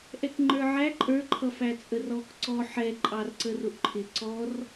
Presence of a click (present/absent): present